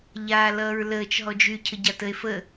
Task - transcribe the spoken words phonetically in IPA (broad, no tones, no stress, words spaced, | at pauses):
ʎaːlʌːɹləːt͡ʃ ɦɔd͡ʒy cʰəɟatəe̯ fə